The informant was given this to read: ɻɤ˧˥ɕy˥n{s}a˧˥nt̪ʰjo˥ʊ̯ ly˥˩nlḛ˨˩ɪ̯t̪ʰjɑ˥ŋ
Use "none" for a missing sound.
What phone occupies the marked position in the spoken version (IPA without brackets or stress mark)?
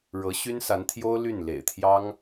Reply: s